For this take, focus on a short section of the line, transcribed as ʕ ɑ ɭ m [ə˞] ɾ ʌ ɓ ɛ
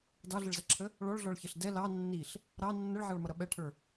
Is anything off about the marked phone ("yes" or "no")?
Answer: yes